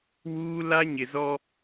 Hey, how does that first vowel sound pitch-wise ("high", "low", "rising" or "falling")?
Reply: high